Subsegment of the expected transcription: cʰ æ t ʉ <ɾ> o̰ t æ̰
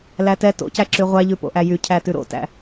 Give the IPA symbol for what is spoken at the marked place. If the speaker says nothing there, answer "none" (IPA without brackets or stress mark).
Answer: ɾ